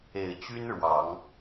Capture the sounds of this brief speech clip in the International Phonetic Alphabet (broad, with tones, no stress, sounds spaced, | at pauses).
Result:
e˨˩ ɪ̯ t͡ɕ y˥ n ɻ w ɑ˨˩˦ ŋ